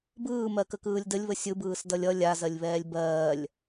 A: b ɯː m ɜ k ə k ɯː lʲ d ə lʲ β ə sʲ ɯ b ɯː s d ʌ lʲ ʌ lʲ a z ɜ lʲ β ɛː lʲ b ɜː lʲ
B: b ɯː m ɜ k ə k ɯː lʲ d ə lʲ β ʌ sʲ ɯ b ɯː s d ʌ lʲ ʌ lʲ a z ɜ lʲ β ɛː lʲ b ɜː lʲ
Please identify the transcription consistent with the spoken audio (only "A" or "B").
A